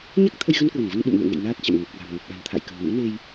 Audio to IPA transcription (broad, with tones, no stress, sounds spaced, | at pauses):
ɲ a˦˥ k̚ t̪ʰ ə˧ j ɣ ə˧ n k w ə˧˩ n v ə˧ n ɓ ṵ˧˨ m n ɨ̰˧˨ ə̯ ŋ ɛ̰˧˨ j n aː˦˥ t̚ t͡ɕ a̰˧˨ m ŋ ə˨˩ p̚ k w a̤˨˩ m ŋ ə˨˩ p̚ ɓ a̤˨˩ n t̪ʰ a̰˧˨ j k ə̤˨˩ m ŋ ṵ˧˥ n e˧ j